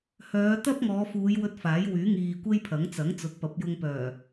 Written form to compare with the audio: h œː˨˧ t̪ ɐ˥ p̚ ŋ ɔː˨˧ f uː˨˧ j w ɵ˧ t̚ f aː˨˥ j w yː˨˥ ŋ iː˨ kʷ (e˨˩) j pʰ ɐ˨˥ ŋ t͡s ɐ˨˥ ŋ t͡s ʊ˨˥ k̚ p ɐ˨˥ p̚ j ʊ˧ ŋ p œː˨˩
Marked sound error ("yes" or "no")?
yes